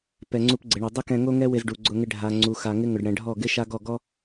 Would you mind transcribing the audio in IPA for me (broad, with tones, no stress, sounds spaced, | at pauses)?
p ɛ˨ ŋ͡ǀ u˧ p ɡ͡ǀ ɪ˨ ɳ o˨ dˤ ʊ˦ k ɛ̃˧ ŋ o˦ ŋ ɛ˦ w ɪ˧ z ɖ u˨ ɡ͡ǀ ʊ˧ ŋ ɪ˧ ɖʱ a˨ ŋ͡ǀ u˨ x a˨ ŋ ɪ˦ ŋ ʊ˨ ɖ ɽ ɛ̃˨ ɖʱ ɔ˦˨ ɡ ɪ˦ ʃ a˦ ɡ ɔ˦˨ ɡ ɔ˦